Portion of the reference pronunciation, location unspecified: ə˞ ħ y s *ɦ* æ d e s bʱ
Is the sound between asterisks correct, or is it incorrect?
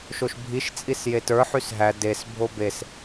correct